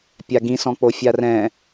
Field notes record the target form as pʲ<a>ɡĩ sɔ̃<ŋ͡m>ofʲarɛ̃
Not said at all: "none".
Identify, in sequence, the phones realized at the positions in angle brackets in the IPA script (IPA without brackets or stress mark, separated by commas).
a, k͡p